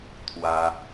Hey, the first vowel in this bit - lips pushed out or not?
no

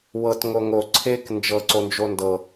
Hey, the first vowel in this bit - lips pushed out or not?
no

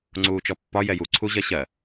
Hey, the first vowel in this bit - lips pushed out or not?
yes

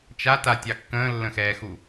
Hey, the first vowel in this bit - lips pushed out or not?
no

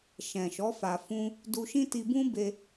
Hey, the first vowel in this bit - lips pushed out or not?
no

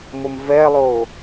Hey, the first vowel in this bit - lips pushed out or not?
yes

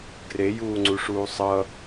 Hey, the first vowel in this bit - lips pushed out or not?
no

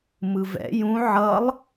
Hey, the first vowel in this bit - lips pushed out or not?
no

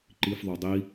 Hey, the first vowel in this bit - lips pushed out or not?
no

